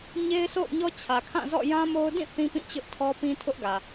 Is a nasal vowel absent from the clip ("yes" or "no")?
no